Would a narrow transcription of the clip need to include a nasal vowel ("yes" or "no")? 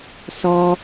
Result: no